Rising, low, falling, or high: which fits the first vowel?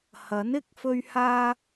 rising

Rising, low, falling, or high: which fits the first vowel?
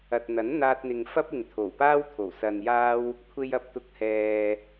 low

